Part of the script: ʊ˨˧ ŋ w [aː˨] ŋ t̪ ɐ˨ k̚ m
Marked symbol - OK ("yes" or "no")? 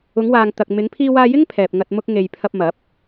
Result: yes